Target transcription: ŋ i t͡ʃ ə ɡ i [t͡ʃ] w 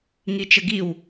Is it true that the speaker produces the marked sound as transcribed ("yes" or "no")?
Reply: no